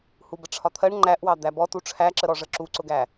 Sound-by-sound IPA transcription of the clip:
h u b ə ʈ͡ʂʰ ɒ t̪ʰ ɜ ɳ ŋ͡ǃ æ ʔ w ɑ d̪ æ b ɔ t u ʈ͡ʂʰ æ ǁ ə ɾ ɔ ʐ ə ǁ u ǀ ʊ ɡ æ

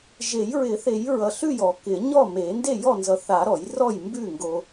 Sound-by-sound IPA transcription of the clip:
ʒ e˨˩˦ j ɹ ɪ˨˩˦ θ e˨˩˦ j ɹ ʌ˨ ɬ ʉ˥˩ j ɔ˨˩˦ k ɪ˨˩˦ ɲ ɔ˥˩ m e˨˩˦ n d e˥˩ j ɔ˥˩ n z ʌ˨ θ a˨˩˦ ɾ ɔ˨˩˦ j r ɔ˥˩ j m b ʉ˥˩ ŋ ɡ o˨

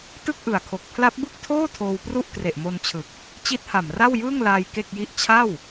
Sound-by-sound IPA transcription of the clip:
t ɯ˥˩ k̚ ʔ ɯ˨˩ a̯ kʰ o˨˩ k̚ pʰ l a˦˥ p̚ b ɯ˥˩ k̚ tʰ oː˥˩ tʰ oː˧ w p r u˥˩ ʔ k r e˨˩ ʔ m o˧ n t͡ɕʰ ɯ˨˩ k̚ | t͡ɕ i˦˥ t̚ h a˨˩ m r a˥˩ w j ɯː˥˩ ŋ l aː˧ j k e˥˩ k̚ j i˥˩ ʔ t͡ɕʰ a˥˩ w

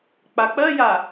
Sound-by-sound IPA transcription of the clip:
k͡p a k͡p ɜ j a

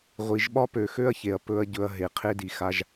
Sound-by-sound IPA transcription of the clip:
ʁʷ i˨ ʒ ɓ ɒ˦ p ø˧ x ø˦ ɐ̯ ç e˨ ɐ̯ p ɵ˧ ɐ̯ ɟ ɵ˧ ɐ̯ ɦ e˨ qʰ e˦ d i˧ x a˦ ʒ

